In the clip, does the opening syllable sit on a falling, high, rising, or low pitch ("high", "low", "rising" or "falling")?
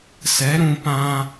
rising